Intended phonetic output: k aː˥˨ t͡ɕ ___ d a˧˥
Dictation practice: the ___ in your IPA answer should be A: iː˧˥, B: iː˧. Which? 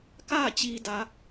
B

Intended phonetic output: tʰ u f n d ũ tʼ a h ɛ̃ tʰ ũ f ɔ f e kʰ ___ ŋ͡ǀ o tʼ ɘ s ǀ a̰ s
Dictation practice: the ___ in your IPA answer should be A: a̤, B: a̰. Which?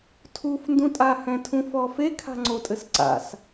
A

